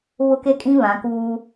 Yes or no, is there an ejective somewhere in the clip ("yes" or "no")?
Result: yes